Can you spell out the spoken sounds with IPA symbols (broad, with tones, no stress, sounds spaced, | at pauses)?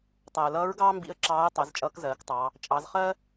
tˤ æ˩ ə̯ l ʌː˧˥ ɹ ɡ ɑː˥ m b ḭ˧˥ ə̯ ǁ ɑː˧˥ ə̯ tˤ ɛ˩˧ z t͡ʃʼ ʌː˧˥ k z ɜː˩˧ k tˤ ɑ˩˧ | t͡ʃʼ ɑ˩˧ z χ ɜ˥